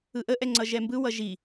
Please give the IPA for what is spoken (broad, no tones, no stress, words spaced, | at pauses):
ɯʔəʔɛ ŋ͡ǀʌʒɛmbɯwʌ ʒi